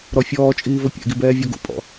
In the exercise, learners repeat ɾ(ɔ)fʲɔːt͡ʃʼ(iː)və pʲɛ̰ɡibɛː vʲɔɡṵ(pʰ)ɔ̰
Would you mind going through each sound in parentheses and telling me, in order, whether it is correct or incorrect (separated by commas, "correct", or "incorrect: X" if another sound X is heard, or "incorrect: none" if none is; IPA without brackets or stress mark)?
correct, correct, incorrect: pʼ